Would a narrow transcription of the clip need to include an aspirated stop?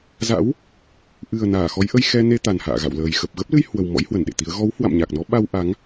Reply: no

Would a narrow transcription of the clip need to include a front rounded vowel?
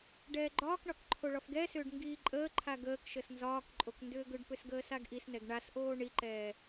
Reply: yes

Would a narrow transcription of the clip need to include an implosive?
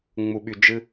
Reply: yes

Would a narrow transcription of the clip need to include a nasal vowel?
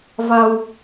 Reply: no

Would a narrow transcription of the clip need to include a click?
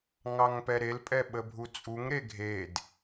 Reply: no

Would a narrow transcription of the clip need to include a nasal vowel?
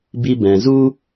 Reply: yes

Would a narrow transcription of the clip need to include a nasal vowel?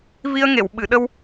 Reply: no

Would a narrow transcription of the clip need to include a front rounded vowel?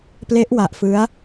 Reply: no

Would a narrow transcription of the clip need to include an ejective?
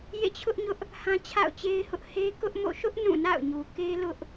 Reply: no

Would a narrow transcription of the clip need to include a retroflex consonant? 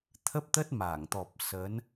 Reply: no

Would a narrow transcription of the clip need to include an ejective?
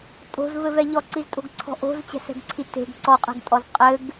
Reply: yes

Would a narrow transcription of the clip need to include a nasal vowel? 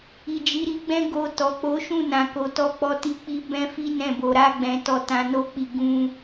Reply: yes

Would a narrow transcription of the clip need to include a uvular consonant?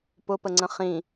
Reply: yes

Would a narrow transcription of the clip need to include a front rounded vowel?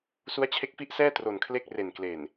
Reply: no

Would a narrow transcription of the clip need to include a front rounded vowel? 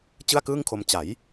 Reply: no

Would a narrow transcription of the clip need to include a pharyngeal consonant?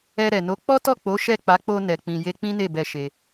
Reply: no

